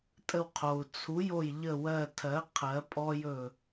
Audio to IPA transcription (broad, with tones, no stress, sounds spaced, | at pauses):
tʼ ə˧˩ w qʰ o˩ u̯ t͡sʰ u˩˥ j o˧˩ j ʎ ə˧˩ w ɜ˧˩ tʰ ɜ˩˥ qʰ ɜ˩˥ pʼ ɔ˦ j ɵ˧˩